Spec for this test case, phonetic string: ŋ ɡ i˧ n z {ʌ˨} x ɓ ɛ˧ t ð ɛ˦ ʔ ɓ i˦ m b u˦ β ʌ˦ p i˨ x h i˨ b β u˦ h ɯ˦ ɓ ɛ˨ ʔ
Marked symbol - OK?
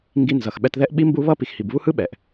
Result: yes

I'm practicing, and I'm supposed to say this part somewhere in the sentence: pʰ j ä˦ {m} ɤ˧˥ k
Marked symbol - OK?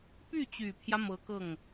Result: yes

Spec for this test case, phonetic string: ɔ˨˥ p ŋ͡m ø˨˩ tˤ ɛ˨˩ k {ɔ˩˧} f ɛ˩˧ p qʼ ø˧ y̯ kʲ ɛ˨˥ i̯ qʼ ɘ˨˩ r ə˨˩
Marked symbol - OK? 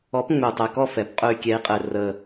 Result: no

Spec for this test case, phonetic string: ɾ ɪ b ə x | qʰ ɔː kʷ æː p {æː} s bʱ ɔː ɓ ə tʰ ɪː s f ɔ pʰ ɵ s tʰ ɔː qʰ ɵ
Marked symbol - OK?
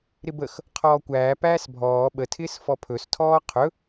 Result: yes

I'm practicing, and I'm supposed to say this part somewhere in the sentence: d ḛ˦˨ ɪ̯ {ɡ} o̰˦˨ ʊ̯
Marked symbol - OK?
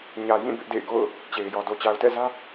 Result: yes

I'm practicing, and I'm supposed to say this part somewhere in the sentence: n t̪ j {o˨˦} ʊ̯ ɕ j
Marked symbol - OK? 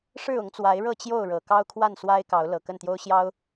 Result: no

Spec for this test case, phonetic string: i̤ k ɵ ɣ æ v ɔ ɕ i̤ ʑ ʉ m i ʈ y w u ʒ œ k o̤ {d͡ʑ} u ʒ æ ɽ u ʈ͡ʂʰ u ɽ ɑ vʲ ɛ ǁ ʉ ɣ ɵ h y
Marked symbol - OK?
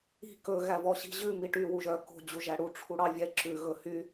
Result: yes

